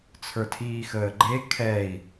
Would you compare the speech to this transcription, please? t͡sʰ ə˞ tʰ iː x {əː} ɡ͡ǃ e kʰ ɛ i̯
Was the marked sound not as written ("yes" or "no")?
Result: no